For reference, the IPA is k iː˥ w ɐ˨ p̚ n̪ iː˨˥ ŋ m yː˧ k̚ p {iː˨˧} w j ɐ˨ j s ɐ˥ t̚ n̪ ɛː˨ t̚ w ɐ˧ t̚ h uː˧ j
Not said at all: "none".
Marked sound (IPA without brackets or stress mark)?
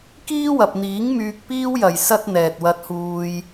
iː˥